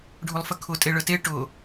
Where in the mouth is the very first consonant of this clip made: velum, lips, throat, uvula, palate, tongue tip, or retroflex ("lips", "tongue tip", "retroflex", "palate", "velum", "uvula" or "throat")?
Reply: retroflex